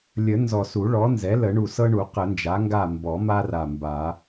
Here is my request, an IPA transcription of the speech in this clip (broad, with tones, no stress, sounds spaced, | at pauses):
lʲ ə˨˩˦ n z ɔ˨˩ s u˨˩˦ ɭ ɔ˩˥ n z ɛ˩˥ l ə˨˩˦ ɳ u˨˩ s ɤ˦ ɳ u˨˩˦ q ə˨˩˦ n d͡ʒ a˩˥ ŋ ɡ a˦˨ m b ɔ˨˩˦ m a˦ r a˨˩ m b a˨˩˦